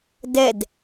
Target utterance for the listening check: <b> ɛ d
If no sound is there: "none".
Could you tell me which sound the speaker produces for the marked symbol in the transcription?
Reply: d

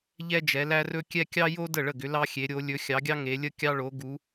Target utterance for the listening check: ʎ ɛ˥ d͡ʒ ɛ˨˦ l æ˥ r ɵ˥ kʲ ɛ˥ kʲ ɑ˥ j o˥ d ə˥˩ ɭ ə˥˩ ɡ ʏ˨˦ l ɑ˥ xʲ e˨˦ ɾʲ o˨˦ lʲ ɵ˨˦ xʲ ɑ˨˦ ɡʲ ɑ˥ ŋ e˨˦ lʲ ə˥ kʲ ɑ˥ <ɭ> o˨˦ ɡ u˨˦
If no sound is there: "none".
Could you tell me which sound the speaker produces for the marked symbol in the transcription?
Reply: ɭ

